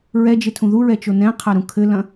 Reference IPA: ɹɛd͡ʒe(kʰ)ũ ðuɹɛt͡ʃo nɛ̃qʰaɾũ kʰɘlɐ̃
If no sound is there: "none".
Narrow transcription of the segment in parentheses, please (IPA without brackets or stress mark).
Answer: tʰ